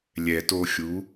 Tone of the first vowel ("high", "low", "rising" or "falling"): low